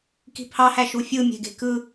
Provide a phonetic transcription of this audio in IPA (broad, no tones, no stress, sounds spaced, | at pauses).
k i̤ pʰ ɑ h æ ʃ u fʲ ɯ mʲ e̤ ɡ e̤ k ɯ